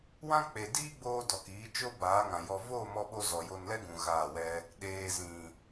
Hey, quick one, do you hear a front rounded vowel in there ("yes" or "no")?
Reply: no